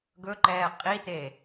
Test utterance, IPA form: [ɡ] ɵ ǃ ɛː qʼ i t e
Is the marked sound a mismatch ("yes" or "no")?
no